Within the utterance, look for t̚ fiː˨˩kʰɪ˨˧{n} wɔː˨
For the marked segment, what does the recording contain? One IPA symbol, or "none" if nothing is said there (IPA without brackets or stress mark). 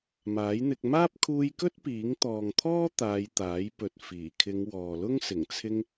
ŋ